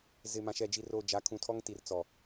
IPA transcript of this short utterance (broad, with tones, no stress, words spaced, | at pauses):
zɪ˨mã˨ʃɛ˨ d͡ʒi˨roː˨ d͡ʒa˨˦kʰũ˨tʰɔ˦ŋ ti˨rt͡sɔ˨